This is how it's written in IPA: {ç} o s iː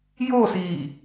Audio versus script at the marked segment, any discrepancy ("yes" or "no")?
yes